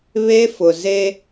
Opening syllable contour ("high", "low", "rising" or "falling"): high